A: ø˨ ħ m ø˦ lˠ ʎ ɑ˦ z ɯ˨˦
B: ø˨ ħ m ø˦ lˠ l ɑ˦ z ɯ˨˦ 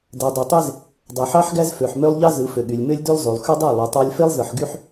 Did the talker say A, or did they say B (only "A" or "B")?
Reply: A